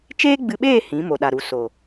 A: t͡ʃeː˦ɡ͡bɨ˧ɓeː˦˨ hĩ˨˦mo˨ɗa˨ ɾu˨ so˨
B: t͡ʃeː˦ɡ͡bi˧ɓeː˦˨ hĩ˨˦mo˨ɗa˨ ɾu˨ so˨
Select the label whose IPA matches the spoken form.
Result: A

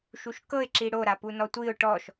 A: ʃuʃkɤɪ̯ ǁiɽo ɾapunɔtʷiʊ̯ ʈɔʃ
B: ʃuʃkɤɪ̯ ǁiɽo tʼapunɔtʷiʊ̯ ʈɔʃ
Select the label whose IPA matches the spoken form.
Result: A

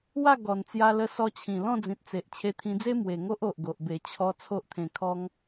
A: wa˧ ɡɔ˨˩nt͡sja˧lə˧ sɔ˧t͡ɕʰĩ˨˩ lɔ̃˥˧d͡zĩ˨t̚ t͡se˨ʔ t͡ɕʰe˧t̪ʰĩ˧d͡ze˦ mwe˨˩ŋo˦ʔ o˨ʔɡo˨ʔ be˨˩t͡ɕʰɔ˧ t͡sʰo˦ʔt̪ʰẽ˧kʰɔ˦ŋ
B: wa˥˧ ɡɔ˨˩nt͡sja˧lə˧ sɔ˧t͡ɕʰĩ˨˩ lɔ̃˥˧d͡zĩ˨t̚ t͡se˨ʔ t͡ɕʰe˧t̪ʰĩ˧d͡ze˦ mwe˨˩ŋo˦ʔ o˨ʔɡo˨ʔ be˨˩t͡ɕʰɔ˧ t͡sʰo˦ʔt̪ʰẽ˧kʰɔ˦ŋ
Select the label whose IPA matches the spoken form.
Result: B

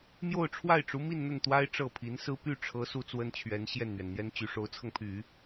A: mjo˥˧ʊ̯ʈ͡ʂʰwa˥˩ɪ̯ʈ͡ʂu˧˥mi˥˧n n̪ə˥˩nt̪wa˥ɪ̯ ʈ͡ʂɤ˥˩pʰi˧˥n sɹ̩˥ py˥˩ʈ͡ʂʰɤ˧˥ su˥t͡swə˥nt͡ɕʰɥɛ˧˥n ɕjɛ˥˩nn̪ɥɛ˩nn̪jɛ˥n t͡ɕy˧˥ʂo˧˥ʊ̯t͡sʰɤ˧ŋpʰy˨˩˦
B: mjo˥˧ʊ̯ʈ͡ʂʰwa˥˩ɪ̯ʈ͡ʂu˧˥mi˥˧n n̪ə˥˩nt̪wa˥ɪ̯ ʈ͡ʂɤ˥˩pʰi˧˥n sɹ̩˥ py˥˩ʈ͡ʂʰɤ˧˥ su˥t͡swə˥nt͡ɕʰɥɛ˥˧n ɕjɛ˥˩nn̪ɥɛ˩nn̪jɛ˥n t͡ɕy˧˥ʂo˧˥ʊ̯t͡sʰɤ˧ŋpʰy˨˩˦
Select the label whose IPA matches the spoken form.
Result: A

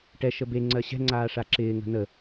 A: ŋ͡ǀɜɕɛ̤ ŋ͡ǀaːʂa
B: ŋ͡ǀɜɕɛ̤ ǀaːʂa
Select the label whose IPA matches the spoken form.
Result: A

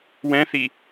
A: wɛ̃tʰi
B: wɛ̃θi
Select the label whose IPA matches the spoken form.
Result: B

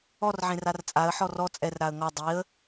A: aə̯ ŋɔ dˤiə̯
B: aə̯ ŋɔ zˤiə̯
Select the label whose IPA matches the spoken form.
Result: A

